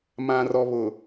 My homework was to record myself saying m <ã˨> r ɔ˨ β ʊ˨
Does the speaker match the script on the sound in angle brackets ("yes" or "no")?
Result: yes